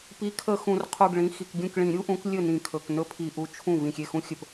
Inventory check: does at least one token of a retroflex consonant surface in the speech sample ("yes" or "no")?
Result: yes